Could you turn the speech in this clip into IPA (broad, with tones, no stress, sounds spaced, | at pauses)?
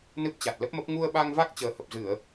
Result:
n ɨ˦˥ p̚ t͡ɕ a˨˩ t̚ l ə˦˥ p̚ m ə˦˥ p̚ ŋ u˧ ə̯ ɓ a˧ ŋ v a˦˥ k̚ t͡ɕ əː˨˩ h ə˨˩ p̚ z ɨ˧˩˨ ə̯